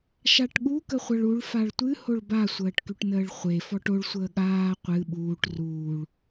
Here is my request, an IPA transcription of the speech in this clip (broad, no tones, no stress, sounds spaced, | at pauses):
ʃ a ʈ ɠ u k ə χʷ ɐ ɭ u ɭ f a ɭ tʷ ɨ h o ɭ b a sʷ əː ʈ k y ʈ n əː ɭ χʷ e f ɔ ʈ o ɭ sʷ əː ɠ aː qʷ ɨ ɓ uː ʈ r uː ɭ